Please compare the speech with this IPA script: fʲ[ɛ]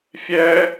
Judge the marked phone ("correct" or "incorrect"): correct